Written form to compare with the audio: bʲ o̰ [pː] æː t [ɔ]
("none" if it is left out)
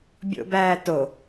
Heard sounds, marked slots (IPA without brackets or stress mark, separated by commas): b, o